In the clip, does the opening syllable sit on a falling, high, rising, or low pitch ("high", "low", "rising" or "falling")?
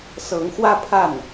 rising